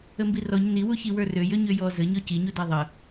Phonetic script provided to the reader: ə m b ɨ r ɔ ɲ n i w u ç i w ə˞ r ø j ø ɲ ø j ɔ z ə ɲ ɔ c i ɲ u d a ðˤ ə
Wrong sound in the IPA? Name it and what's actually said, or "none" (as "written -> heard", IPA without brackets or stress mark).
ɨ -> i